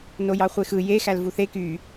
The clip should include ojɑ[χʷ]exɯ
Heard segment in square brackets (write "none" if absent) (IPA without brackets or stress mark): χʷ